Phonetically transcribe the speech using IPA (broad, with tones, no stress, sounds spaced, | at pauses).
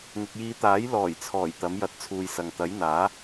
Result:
ŋ ɪ˨ k̚ j iː˨˧ t̪ aː˨˥ j l ɔː˨˩ j t͡sʰ ɔː˨˩ j t̪ ɐ˨˥ m j ɐ˧ t̚ t͡sʰ uː˧ j s ɐ˨ ŋ t̪ ɐ˨˥ j n̪ aː˨˥